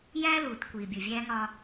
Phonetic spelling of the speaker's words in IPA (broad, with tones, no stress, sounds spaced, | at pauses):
j æː˦ l uː˨ t kʷ iː˨ bʲ u˨ vʲ æː˦ ŋ ɒ˦